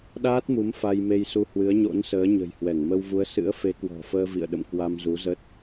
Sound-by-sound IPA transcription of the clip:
ɗaː˦˥t̚mu˨˦m fa˧jme˧jsu˧hwɨ˨˦ə̯ ɲo̰˧˥nsəː˨˦ɲə̤˨˩j hwɛ˧˩ŋmə˧wvu˨˦ə̯ sɨ̰˧˥ə̯fe˨˦kwɔ̤˨˩fəː˧ vḭ˧˨ə̯ɗə̰˧˨mkwa˧m zu˨˦zə˦˥t̚

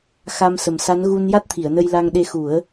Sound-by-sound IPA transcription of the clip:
xa˧msə˨˩msa˧˥n ɣu˧nja˦˥t̚t̪ʰi˨˩˨ə̯ nə˧jla˧ŋɗe˧ xu˨˩˦ə̯

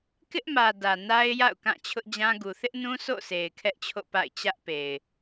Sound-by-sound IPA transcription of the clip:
kɪ˦ʔmä˨ dä˨na˦ɪ̯ja̰˦˨ʊ̯ kã˦˨t͡ɕʰʊ˦ʔd͡ʑã˦ɡu˨ θɪ˦ʔnũ˦ sʰo̰˦˨sʰe˨ɪ̯ kʰɛ˦ʔt͡ɕʰo̰˦˨pa̰˦˨ɪ̯ t͡ɕä˦ʔpe˨ɪ̯

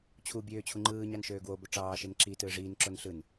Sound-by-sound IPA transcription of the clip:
t͡ɕʰu bʲøː t͡ɕʰuŋ͡ǃɯːɲɑn ʃøːɡwobo ʈ͡ʂɑːʃen ǁi tɯːʐiːnǁon ɬɯn

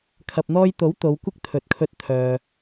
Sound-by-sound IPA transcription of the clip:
kʰɐ˨p̚n̪ɔː˧jt̪o˨˥w t̪o˨˧wkʷɪ˥k̚ t̪ʰɵ˨t̚kʰɵ˧t̚t̪ʰœː˨

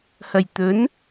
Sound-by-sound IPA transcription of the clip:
hɐ˨˩jt̪ɵ˨˥n

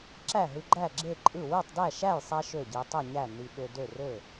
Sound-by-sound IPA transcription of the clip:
ǁæ˥˩ɦɯ˧ɡ͡ǃæ˥˩ ɡ͡ǁe˥˩ǃʼɯ˥˩ wɯ˥˩tˤdæ˥˩ʃæ˥˩jsˤɛ˧ ʃø˥˩ɟi˧ tˤɛ˥˩ɲæ˥˩ ni˧ɓø˧ dø˥˩rø˥˩

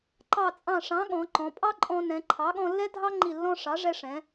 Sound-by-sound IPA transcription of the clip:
ǃɑ˧˩t͡sʼɑ̃˧˩ʂɑ̃˩˥ ɠɔ̃˩˧ǃɔ̃˩˧pʼɑ˥ǃʼɔ̃˧ nɛ̃˩˧ǃʰɑ˩˥ɠɔ̃˧lːɛ˥ dʱɑ˥ ŋ͡ǃi˧˩lːɔ̃˧ ʂɑ˩˥ʐɛ˧ ʂɛ̃˩˧

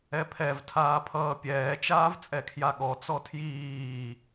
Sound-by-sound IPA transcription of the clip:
ɛpʰɛv tʰaːpʰʌːpʲɛː t͡ʃaːvt͡sʼɛkʰjaɠɔ t͡sɔtʰjiː

